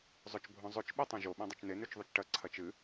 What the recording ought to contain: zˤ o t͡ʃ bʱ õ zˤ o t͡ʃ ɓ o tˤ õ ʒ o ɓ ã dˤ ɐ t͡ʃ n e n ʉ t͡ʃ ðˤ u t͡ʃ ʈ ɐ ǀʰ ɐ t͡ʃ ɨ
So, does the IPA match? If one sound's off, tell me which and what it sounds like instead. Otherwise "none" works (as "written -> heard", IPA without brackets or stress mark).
none